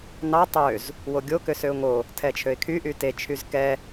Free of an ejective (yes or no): yes